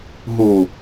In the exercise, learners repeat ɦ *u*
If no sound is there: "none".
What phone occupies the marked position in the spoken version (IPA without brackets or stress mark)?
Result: u